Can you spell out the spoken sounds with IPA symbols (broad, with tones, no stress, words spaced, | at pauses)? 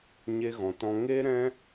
ɲe˧ɣɔ̃˨tɔ̃˧ ŋe˦ ɾɛ̃˦